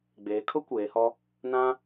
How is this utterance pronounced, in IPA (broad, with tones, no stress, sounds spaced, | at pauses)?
ɡ͡b eː˨˦ kʰ ʊ˦ kʷ eː˨˦ h ɔ˦ | n ã˦